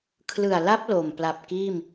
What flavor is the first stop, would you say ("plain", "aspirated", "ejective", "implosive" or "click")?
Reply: aspirated